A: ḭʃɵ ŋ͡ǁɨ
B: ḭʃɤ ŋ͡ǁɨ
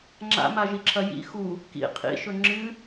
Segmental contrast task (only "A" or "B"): A